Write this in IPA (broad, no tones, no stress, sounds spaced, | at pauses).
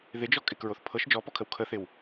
ð ɪ d͡ʒ ɔ kʼ ɪ k ɹ o θ pʰ ɤ ʃ d͡ʒ ɔ p ɔ kʰ ə w kʰ ə θ ɪ w